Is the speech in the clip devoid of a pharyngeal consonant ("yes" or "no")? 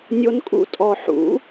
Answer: no